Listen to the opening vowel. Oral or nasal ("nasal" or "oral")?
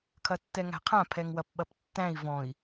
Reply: oral